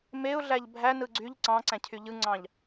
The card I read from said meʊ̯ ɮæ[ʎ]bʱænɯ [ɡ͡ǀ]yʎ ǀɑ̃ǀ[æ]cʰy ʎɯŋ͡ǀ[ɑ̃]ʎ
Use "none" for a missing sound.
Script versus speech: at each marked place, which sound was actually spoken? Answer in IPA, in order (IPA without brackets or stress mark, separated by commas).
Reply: ʎ, ɡ͡ǀ, æ̃, ɑ̃